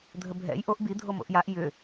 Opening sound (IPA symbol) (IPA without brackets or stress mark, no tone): dʱ